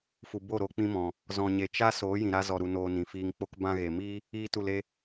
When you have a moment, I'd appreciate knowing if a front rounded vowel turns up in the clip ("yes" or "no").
no